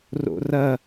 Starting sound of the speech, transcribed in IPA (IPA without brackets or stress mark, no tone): r